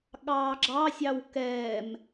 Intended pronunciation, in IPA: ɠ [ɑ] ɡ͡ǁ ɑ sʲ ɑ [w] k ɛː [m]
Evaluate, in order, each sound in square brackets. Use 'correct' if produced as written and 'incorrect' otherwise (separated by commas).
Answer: incorrect, correct, correct